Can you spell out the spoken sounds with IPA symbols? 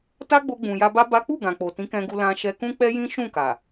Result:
ta˦ɡ͡bo˧ɡ͡bũ˨ ja˧ba˦ ba˦ k͡pu˦˨ɡã˨k͡po˨ tĩ˨˦kɛ̃˧ɡu˧ lã˧ʃɛ˧kũ˦ k͡pɛ˦jĩ˦ ʃũ˦˨ka˨

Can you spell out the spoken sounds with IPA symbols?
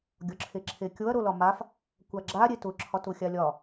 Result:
ɡʲɒǁʰeǁʰekʲoɐ̯ ɾolɒmaf | kʷaɡ͡ǁa ɾʲetʊ ǁʰɒtʊxʲalʲɒ

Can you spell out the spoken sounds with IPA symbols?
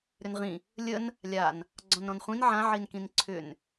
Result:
ɾʏnʁĩ | lʲən | lʲan | ɡ͡ǀɔ̃nɾɔ̃nχʷĩn ʕãʕinkĩn ǀʰʏn

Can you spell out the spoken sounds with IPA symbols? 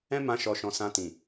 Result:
ɛ̃˦mã˧ʃɔ˨ʃɔ̃˨ sã˧tĩ˨

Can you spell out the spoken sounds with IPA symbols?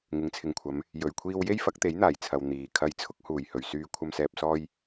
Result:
ŋɪ˨˥ŋt͡sʰɪ˨ŋkʷʰɐ˨˧m | jɵ˨ɥkʷʰiː˧w je˥jfɐ˨˥k̚t̪e˨˥jn̪aː˨˩j t͡sʰɐ˨w n̪iː˨ kʰɐ˨˧jt͡sʰʊ˧k̚huː˨˩j hɵ˨˩ɥsyː˨ kʷʰɐ˨msɛː˨p̚sɔː˧j

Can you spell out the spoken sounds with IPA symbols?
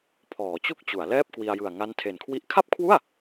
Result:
pʰɔː˩˦t͡ɕu˦˥k̚ t͡ɕu˩˦a̯ lɛː˥˩p̚kwi˧a̯jɯ˨˩a̯ ŋa˦˥ntʰe˨˩nkʰwi˦˥ʔ kʰa˥˩p̚kʰwu˥˩a̯

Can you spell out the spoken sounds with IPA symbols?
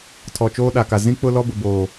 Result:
tʰɔ˨t͡ʃoː˦ɗa˨ka˨ zĩ˦ k͡pʊ˦lɔ˦bʊ˨boː˨

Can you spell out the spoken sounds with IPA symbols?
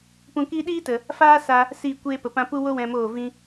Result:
pũ˧kiː˦ ɗiː˦tə˨ | faː˦sa˧ | si˦˨ kʷeː˧pə˨pã˧pu˦ wo˦wɛ̃˧moː˦˨ vĩ˧

